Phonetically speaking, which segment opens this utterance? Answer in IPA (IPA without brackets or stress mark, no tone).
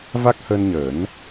v